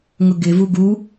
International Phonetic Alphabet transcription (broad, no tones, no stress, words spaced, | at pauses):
ŋʊɡɪvu ɡu